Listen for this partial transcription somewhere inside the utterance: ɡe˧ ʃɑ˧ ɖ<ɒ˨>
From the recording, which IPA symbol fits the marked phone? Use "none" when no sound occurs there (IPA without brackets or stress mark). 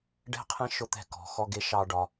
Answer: ɒ˨